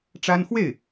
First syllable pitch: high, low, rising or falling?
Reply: high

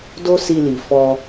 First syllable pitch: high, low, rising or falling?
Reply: high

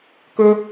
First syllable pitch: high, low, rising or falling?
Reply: high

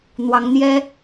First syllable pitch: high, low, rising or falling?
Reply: rising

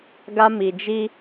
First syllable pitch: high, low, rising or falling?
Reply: high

